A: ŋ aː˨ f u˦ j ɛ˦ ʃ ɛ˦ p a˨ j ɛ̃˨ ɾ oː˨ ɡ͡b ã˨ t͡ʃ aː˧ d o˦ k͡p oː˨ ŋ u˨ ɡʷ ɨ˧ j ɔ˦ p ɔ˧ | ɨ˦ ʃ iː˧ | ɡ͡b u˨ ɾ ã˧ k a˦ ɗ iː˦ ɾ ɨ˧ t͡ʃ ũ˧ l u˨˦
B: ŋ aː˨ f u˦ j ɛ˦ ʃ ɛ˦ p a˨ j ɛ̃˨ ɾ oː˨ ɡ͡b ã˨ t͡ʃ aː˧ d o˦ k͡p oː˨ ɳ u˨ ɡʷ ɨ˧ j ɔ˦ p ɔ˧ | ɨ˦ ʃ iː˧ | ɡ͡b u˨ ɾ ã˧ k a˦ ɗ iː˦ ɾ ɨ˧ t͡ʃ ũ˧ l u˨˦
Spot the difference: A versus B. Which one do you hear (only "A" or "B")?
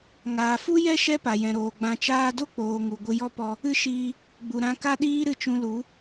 A